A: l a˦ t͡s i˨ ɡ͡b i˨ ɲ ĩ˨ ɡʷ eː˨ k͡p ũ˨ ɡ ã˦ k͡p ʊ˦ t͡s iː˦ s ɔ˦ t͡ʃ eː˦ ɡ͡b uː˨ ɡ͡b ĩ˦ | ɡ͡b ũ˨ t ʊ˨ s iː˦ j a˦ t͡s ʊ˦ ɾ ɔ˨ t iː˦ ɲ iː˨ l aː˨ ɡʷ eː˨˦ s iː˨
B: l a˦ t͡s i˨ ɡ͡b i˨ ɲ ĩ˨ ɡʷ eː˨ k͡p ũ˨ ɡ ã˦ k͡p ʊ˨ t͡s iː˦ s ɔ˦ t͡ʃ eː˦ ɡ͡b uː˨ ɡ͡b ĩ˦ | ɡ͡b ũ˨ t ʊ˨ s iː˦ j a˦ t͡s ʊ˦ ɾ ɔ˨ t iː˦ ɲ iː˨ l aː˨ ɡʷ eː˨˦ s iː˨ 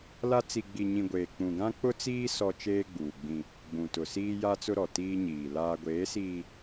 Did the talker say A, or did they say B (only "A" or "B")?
A